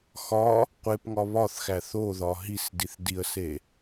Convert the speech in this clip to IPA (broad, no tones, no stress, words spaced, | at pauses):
xɒ | qʷepŋɒ βɒθxæ θoðɒ ɦisdiθ diə̯se